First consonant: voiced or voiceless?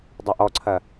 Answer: voiced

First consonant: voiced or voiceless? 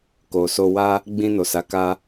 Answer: voiceless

